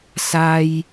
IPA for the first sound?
s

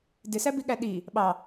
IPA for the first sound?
d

